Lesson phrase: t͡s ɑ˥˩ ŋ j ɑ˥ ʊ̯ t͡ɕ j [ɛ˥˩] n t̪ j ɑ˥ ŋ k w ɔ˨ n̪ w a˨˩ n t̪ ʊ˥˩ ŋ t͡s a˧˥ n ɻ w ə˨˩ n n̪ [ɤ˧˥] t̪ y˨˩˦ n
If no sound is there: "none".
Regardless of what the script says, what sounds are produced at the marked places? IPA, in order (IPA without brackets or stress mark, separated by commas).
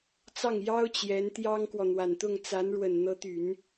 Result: ɛ˧˥, ɤ˧˥